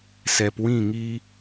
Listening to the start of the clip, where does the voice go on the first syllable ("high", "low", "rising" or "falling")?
low